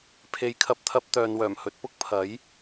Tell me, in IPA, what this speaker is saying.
pʰ e˨˧ j kʰ ɐ˨ p̚ t̪ʰ ɐ˧ p̚ t̪ œː˨ n w œː˨˩ m h ɵ˧ t̚ p ʊ˥ k̚ pʰ ɐ˨˥ j

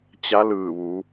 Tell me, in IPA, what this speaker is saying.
t͡ɕ a˧˥ l ɯː˧˩ ʋ u˩˧

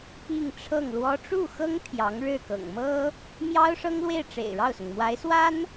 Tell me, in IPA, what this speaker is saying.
p i˥˧ ŋ ʈ͡ʂʰ ɤ˥˩ ŋ l w ɔ˥ ʈ͡ʂ u˥˩ x ɤ˥ ŋ t̪ʰ j ɑ˧˥ ŋ ɻ ɻ̩˥˩ k ɤ̰˨˩ ŋ m ɤ˥ | m j ɑ˥ ʊ̯ ʂ ɤ˥ ŋ l w e˥˩ ɪ̯ ʈ͡ʂ ḛ˨˩ ɪ̯ ɻ ɑ˥˩ ʊ̯ s ʊ˩ ŋ m w a˧˥ ɪ̯ s w a˥ n

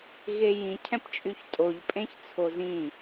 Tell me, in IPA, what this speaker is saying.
ɣ e j ĩ cʰ ɛ̃ p t͡ʃʼ y ç tʼ o ʎ pʼ ẽ ç t͡sʰ o z ĩ

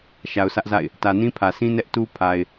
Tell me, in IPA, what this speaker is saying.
ʃ a˨ ʊ̯ sʰ ä˦ ʔ z a̰˦˨ ɪ̯ | t ä˨ n ĩ˦ pʰ ä˨ sʰ ĩ˦ n ɛ˦ ʔ t u˦ pʰ a˨ ɪ̯

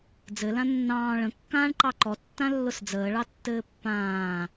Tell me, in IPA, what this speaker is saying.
d͡z ɘ l ã nː ɑ̃ː ɭ ə̃ kː ãː ɳ ǃ ɑ ǃ ɔ tː ã lː ʊ s d͡z əː ɭ ɑ tː ɘː pː ãː

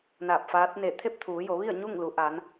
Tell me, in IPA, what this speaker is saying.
n aː˧˩ p̚ f aː˧˥ t̚ n eː˧˩ t̪ʰ e˥˨ p̚ t̪ʰ uː˩˧ j o˩˧ ʋ i˥˨ ə̯ ɲ u˥˨ ŋ l u˩˧ ʔ a˩˧ n

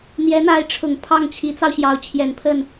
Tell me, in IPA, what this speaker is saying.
n̪ j ɛ˧˥ n̪ a˧˥ ɪ̯ ʈ͡ʂʰ ʊ˨˩ ŋ pʰ ɑ˥˩ ŋ t͡ɕʰ i˧˥ t͡s ɑ˧ ʊ̯ ɕ j ɑ˧˥ ʊ̯ t͡ɕʰ j ɛ˨˩ n pʰ ə˥˩ n

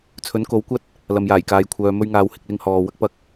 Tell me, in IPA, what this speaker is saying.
t͡sʰ ɵ˨˥ n k o˨˥ w kʷ ɐ˥ t̚ | l ɐ˨ m j aː˨˩ j k aː˨ j kʷʰ œː˨ m ɵ˧ ɥ ŋ aː˨ w h ɪ˨ k̚ l ɪ˧ ŋ h ɔː˨ w ɐ˥ k̚ p ɐ˧ k̚

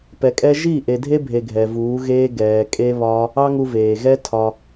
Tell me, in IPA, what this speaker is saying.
p ɛ˨ kʼ ɛ˦ ʒ i˦˨ ʔ e˨ dʱ e˦ bʱ e˨ ɡʱ ɛ˨ v uː˨˦ ɣ eː˦ ɡ ɛː˨ kʼ e˦ β ɒ˦ | ɑ˦ ŋ u˧ v eː˨ ɣ ɛ˦ tʰ ɒ˧

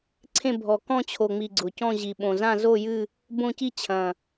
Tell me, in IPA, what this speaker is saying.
ǀʰ ẽ˥˧ bʱ ɔ˨˩ k ɔ̃˥˧ t͡ɕʰ o˨˩ ŋ͡m i˨˩ ɡ͡ǀ ʊ˨˩ c ɔ̃˥˧ ʑ i˨˩ ɓ õ˨˩ z ã˥˧ z o˥˧ j ɨ˥˧ | b õ˥˧ c i˥˧ t͡ɕʰ ɐ̃˨˩

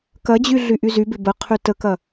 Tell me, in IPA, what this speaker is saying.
k ɐ d͡ʑ y ɮ y ʔ y z y b ɪ b ə qʰ y t ə k ɐ

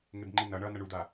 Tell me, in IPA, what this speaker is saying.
ŋ e b ŋ͡ǃ i n ʌ ɳ ʌ n ʌ ɳ u d̪ a

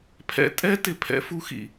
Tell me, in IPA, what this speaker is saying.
pʰ ɛ̰˨ tʼ ɛ˧ t ɪ˧ pʰ ɛ̰˨˦ f u˧ x ḭ˨

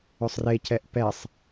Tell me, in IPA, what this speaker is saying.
ʏ sˤ r e c ɛ ʔ p ɛ sˤ

